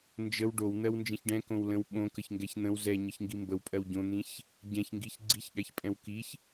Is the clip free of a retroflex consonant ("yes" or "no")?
no